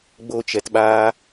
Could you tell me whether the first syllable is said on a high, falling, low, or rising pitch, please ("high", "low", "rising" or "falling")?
high